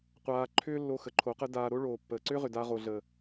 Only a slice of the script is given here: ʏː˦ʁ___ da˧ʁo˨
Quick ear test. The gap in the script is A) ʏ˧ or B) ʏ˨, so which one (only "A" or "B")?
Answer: B